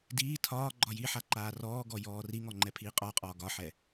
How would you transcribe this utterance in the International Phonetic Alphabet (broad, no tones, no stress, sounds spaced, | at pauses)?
d iː tʰ ɒː ɡ͡ǃ ɒ j i ħ a ǃ aː r ɔː ɡ ɔ j ɔː r i ŋ ɔ ŋ͡ǃ ɛ pʰ iː qʼ ɒ qʼ ɒː ɡ ɒ ħ ɛ